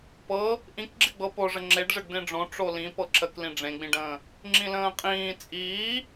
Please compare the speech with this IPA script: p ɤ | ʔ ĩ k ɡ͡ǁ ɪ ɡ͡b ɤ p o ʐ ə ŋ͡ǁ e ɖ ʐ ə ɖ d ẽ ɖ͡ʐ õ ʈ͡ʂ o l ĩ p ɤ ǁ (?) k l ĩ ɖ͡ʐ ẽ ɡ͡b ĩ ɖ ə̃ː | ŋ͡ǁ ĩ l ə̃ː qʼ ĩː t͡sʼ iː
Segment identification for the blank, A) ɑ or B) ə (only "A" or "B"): B